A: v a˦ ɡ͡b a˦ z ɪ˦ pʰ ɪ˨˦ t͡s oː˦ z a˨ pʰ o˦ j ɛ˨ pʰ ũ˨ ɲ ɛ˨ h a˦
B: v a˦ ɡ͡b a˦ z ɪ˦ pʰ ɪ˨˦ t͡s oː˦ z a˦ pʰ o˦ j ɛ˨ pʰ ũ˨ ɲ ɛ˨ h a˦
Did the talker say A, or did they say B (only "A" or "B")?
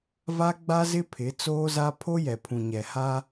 B